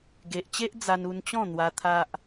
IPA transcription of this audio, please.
ɡ e˨ ʔ t͡ɕ e˦ ʔ d͡z a˧ n u˧ n t͡ɕ ɔ̃˥˧ n̪ w a˧ t̪ʰ a˦ ʔ

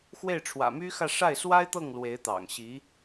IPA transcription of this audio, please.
x w e˥˩ ɪ̯ ʈ͡ʂʰ w ä̰˨˩ m y˥ x ä˥˧ ʂ a˥˩ ɪ̯ s w a˥ ɪ̯ t̪ ɤ˥˩ ŋ l w e˧˥ ɪ̯ t̪ ɑ̰˨˩ ŋ ɕ i˧˥

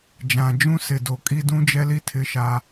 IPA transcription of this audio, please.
d͡ʒ ã˨ d͡ʒ ũ˦ s ɪ˨ d o˨ kʼ i˦ d ũ˦ d͡ʒ ɛ˦ l i˦ tʰ ɪ˦ ʃ aː˦

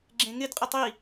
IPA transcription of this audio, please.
ɡ͡ǁ ẽ ŋ ɪ d qʼ ɪ tˤ i

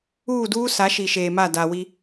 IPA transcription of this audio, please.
uː˦˨ d uː˦ s a˨˦ ʃ i˨ ʃ eː˨ m a˦˨ d a˨ w i˦

